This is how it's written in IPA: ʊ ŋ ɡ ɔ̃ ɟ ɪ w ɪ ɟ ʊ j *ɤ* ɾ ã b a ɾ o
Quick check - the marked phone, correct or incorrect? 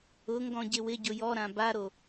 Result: incorrect